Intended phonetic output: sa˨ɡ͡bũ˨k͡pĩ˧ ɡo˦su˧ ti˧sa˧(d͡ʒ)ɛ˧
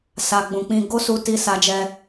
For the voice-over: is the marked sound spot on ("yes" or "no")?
yes